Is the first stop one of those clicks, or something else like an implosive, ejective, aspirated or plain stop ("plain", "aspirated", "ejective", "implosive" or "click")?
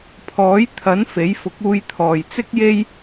aspirated